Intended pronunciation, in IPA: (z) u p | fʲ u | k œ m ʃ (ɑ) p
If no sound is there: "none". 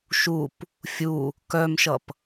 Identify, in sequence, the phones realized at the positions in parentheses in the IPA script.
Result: ʃ, ʌ

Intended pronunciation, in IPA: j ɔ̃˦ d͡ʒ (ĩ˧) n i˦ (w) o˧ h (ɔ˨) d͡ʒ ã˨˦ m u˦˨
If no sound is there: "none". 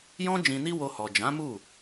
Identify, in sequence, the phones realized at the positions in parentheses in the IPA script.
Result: ĩ˧, w, ɔ˨

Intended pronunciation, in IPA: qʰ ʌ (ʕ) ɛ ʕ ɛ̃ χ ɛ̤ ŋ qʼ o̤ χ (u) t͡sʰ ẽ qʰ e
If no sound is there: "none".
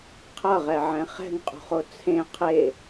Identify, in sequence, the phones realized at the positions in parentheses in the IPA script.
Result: ʁ, o

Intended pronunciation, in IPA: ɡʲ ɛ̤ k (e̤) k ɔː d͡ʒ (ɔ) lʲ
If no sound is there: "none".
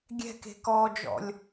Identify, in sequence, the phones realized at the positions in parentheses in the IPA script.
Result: e̤, ɔ̰

